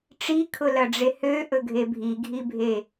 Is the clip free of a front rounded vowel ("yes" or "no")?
no